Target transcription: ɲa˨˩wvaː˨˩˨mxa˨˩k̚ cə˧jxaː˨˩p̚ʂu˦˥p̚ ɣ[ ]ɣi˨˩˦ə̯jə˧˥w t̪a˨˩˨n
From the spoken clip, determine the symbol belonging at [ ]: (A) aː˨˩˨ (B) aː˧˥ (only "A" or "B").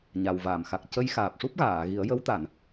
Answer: A